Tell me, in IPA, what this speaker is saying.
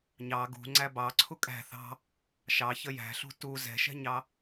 ɲɑ ɡṳŋ͡ǀæ bɑǀʰu kʼæ̤ θɑ̤ | ʃɑçə jæ̤ɬṳ tu zɛ̤ʃɛ̤ɲɑ

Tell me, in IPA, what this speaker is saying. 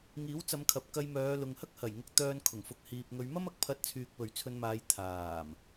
ŋiː˨˥wt͡sɐ˨˧mkʰɐ˨p̚ kɐ˧jmœː˨˧ lʊ˨ŋhɐ˥k̚hɐ˨˩jŋʊ˨˥k̚ t̪œː˧n kʰʊ˨˩ŋfʊ˨k̚hiː˨p̚ ŋɵ˨˧ɥmɐ˥mɐ˨˥k̚ pʰɐ˧t̚t͡sʰyː˨k̚ pɵ˨ɥt͡sʰɵ˧nmaː˨˧j t̪ʰaː˨˩m

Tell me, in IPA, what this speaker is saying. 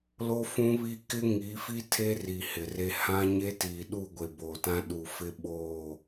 lo˦ fũ˦βi˦ kɪ˦ ŋi˨˦fi˦ tʰe˦ri˨ hɪ˨re˦ hã˦ ɲe˦tiː˨ ɗu˦˨ɡʷe˨ bo˨tã˦ ɗu˨fɪ˦ɓoː˦˨

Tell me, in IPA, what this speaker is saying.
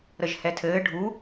ɾəʒhɛtʰɘː ɖʱu

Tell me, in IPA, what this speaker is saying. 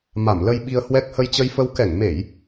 ma˧˩mlə˧jɓi˧ə̯hwɛ˦˥k̚ hə˧jt͡ɕə˧jfə˧w kɛ˧˩ŋme˧˩˨j

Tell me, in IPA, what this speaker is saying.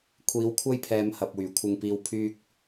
kʷʰiː˨˥wkʷʰɐ˥jpʰɛː˨˧m hɐ˨p̚wyː˨˩kʷʰɪ˧ŋpiː˧w pʰyː˥k̚

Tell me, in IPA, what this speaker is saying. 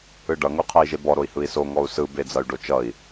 ɯɖʌ ŋoqʰɜi̯ʒebɔ ɾoi̯hɯi̯so ŋɔu̯sɯ bed͡zʌy̯ɖot͡ʃʌi̯

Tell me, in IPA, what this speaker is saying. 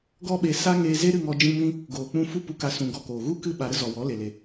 ɡɔ˦ɓe˧sa˦ ŋeː˧ze˦ɾɨ˦˨ŋɔ˧ d͡ʒĩ˧mĩ˧ | ɡoː˨k͡pũ˧ fu˦pu˧ka˧ sũ˧ ɡɔ˧koː˨ɣu˦ kɨ˦ ɓa˨ɾə˦ zɔ˨wɔ˨˦ le˧le˧

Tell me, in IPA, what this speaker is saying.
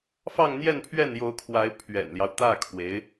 fɑ˥˧ŋn̪jɛ˥˧npʰɥɛ˥˩njo˧˥ʊ̯ kʰwa˧˥ɪ̯pʰɥɛ̰˨˩nljɑ˦ʊ̯ t̪ä˥˩kʰwe˧˥ɪ̯

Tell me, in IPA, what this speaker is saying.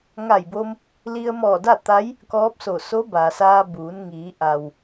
ŋa˧˩jbo˧m | li˧ə̯mɔː˧˩da˥˨t̪a˧˥j | kɔː˧˥p̚so˧˩ so˧˥ ba˩saː˧buː˩˧n ŋiː˩˧ʔa˩w

